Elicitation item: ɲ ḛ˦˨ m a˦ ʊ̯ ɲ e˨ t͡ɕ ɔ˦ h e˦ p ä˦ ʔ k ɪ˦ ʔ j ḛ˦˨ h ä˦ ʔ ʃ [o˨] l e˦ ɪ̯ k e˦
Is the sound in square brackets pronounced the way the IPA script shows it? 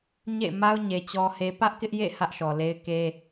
no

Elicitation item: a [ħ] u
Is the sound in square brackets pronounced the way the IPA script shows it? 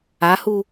no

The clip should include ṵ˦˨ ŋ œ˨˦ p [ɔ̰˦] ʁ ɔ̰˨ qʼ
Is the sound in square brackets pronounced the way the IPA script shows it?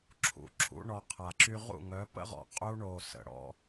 no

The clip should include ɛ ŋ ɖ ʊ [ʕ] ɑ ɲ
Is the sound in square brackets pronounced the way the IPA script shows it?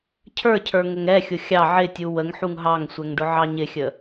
yes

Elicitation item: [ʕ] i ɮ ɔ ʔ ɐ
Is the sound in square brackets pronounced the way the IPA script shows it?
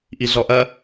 no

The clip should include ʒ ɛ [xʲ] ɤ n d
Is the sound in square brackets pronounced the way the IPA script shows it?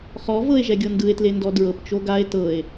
no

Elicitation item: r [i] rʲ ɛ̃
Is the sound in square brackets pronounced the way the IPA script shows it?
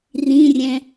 no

